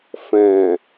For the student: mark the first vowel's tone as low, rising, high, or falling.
low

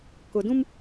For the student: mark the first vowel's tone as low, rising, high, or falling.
low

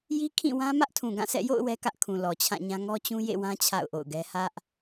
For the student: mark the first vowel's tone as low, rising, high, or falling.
high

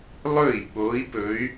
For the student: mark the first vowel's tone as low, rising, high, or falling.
falling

